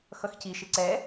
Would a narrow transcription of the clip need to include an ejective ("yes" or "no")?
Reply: no